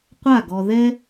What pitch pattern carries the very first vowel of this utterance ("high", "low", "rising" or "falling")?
falling